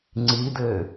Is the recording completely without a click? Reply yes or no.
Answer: no